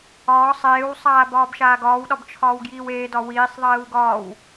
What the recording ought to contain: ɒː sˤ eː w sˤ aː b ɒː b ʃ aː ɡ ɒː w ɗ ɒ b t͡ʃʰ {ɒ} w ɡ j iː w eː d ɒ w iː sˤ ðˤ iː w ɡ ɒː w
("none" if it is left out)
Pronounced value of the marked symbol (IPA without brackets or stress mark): ɒː